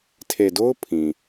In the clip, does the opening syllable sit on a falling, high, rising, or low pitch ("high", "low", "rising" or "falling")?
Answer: low